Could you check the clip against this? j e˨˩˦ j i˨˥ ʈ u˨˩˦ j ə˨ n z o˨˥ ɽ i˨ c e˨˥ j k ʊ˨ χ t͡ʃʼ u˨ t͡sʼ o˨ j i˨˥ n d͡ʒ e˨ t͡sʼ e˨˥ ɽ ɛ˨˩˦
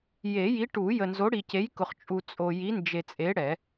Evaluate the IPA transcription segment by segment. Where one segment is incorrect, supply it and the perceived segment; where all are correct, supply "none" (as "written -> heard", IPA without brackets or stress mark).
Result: none